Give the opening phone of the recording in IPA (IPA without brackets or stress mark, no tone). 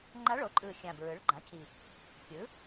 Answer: ŋ͡ǃ